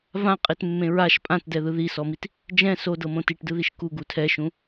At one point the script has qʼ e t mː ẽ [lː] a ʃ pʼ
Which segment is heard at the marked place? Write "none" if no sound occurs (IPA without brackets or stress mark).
ɹ